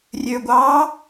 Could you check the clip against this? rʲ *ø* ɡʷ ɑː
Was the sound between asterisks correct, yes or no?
yes